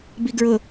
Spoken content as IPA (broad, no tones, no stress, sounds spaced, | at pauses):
b i ɡ ɹ ʊ